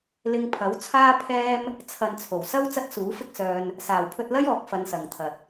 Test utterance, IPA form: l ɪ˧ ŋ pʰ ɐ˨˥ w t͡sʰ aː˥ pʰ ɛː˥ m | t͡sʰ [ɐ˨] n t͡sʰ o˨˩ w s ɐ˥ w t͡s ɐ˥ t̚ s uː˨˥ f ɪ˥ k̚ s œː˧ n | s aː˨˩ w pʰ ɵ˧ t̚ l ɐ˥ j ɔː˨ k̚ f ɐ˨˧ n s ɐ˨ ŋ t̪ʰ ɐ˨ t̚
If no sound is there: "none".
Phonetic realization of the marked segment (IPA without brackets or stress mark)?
ɐ˨